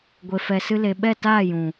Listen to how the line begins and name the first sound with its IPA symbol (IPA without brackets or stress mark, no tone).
ɡʷ